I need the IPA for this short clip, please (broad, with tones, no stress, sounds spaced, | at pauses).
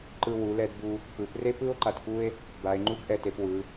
ǃ ɯ˧ w u˩˧ l ɛ˧ d b u˧ | p ɯ˩˧ p r e˥ p ɯ˥ o̯ ǃ a˧ t f u˥ e̯ | b a˩˧ e̯ ŋ͡ǃ u˥ ɡ ʔ ɛ˧ t e˩˧ p w ɯ˩˧